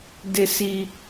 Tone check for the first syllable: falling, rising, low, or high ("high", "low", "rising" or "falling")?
high